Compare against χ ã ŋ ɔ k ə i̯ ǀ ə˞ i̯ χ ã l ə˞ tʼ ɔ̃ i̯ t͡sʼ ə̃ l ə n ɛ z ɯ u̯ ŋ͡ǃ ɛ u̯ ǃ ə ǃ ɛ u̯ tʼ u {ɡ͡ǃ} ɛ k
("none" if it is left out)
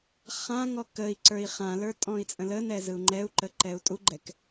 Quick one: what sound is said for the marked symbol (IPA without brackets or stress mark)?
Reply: ɡ͡ǃ